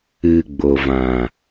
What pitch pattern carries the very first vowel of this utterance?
low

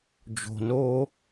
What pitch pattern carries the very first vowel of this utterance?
low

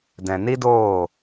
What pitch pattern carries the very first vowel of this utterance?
low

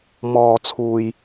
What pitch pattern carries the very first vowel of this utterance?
low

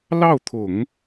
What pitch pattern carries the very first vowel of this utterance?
falling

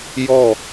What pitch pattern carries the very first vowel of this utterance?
falling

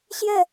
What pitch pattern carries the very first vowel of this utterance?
falling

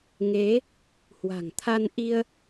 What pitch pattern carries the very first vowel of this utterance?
rising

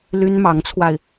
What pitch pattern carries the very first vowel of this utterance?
high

